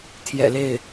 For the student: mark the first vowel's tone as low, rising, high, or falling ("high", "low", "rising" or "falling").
low